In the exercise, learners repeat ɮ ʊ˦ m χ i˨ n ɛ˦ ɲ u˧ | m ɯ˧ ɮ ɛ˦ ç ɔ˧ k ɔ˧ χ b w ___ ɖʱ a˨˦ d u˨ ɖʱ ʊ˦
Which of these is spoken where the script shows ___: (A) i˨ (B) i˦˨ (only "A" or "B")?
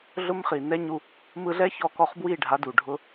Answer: B